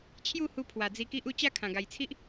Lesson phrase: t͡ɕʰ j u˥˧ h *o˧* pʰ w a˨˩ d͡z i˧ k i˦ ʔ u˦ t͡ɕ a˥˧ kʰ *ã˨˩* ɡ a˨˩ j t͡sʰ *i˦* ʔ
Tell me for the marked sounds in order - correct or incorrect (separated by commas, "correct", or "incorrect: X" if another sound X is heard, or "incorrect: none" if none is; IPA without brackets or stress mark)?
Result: incorrect: u˧, correct, correct